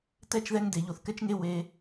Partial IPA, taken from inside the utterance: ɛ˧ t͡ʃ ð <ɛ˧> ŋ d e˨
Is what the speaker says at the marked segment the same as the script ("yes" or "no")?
yes